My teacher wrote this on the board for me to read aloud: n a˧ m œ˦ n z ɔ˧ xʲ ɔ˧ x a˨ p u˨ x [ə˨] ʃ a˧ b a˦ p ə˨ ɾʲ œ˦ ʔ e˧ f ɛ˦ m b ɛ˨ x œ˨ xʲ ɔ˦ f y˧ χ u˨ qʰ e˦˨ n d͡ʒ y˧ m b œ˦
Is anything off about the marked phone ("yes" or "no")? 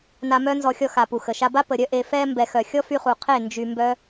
no